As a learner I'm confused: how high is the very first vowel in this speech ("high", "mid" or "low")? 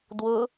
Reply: high